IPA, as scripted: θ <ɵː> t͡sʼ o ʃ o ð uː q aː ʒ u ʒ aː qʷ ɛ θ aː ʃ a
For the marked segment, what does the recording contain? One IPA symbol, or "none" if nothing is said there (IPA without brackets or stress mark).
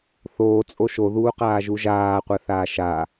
oː